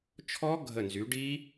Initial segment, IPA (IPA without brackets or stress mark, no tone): t͡ʃʰ